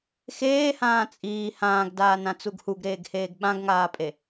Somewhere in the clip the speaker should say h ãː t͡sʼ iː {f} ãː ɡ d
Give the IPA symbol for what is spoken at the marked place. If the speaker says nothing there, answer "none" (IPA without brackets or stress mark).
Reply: h